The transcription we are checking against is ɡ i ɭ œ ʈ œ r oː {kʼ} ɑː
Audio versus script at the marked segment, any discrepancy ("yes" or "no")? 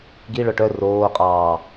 yes